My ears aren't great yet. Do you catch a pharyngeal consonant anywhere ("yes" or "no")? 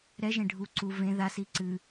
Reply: no